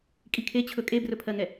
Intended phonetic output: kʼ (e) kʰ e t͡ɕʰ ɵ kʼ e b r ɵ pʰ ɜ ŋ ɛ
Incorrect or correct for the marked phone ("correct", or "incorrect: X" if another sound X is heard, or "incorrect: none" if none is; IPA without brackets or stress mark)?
incorrect: i